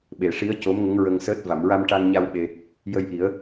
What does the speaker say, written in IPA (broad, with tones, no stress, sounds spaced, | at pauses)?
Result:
ɓ e˨˩˨ ʂ i˧˥ ə̯ c o˧˥ m ŋ ə˧˥ ŋ ɹ ə˧ ŋ s əː˦˥ t̚ v a˨˩˨ m ɹ a˧ m ʈ a˧ ŋ ɲ a˧ w ɓ e˧ | j ə˧ j ʔ i˨˩˦ ə̯